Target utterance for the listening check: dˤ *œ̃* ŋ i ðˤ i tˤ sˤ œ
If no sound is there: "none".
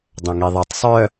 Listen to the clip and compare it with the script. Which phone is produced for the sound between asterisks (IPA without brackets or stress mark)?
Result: œ̃